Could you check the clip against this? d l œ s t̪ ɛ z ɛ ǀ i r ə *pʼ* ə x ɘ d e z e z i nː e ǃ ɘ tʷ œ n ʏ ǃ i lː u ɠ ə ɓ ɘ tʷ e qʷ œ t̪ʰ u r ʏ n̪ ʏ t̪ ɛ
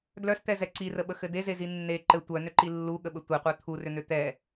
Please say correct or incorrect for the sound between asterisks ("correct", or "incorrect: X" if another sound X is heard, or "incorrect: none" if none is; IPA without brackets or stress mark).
incorrect: ɓ